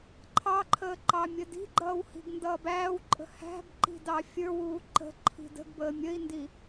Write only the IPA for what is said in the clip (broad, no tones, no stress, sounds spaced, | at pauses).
ǃʰ ɑ ǃʰ əː ǃ ɑ mʲ ə d i̤ ɡ͡ǃ ʌː w h i̤ ɡ n d ʌː b æː w ǃʼ ə̤ h æ̤ b ǃ i̤ d ɑ fʲ ə˞ w uː ǃ ə̤ ǃʰ i̤ d ə̤ ɡ b əː mʲ ə i̯ n d i